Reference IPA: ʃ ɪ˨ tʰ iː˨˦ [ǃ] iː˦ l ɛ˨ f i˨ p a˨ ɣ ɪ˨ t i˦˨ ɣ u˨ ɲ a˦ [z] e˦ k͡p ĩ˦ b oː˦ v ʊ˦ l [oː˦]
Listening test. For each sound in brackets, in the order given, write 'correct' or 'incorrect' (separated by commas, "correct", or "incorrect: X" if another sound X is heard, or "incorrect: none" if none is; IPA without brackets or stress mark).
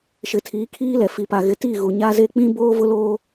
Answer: incorrect: kʰ, correct, correct